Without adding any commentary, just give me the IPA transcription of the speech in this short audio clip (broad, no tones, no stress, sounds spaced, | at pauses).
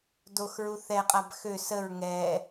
d o x ɹ u θ ɛ qʼ a b x ø s ə ɹ ŋ ɛ